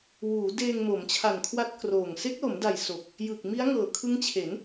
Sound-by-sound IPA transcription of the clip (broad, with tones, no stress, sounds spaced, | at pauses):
w uː˩˦ d eː˧ ŋ m o˩˦ m t͡ɕʰ a˨˩ n kʰ w a˦˥ t̚ k r oː˨˩ ŋ s e˦˥ k̚ l o˩˦ m d a˨˩ j s o˨˩ k̚ | j ɯ˨˩ k̚ m i˦˥ a̯ ŋ ɤː˨˩ kʰ ɯ˦˥ ŋ t͡ɕʰ e˩˦ n